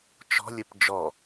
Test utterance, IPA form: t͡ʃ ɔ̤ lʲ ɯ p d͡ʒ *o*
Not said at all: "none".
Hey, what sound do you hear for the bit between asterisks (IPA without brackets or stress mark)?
ɔ